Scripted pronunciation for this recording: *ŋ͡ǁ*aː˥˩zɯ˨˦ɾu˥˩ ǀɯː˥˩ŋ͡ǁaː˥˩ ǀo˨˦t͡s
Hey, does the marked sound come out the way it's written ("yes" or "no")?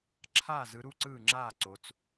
no